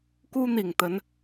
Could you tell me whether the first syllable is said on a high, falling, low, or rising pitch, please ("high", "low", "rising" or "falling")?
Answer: high